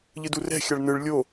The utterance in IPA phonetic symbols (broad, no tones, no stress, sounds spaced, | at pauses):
ʎ ɯ d u r ɛ̤ xʲ a ɭ n ɯ ɭ lʲ o